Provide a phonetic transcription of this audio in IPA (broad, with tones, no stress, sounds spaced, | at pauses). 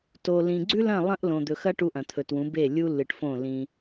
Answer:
t o˨ l ĩ˨ ɡ͡ǀ ʉ˦ l ɐ̃˦˨ lˠ ɐ̃˦ ʔ l õ˨ d̪ ɵ˨ x ɐ˦ ʈ u˦ ʔ ɐ̃˨ t̪ʰ ɵ˨ t w ũ˨˦ b e˦˨ lʲ u˦ l ɨ˨ ʈ f õ˦˨ l ĩ˦